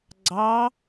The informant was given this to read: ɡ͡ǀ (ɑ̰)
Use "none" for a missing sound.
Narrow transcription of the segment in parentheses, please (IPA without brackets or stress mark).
ɑ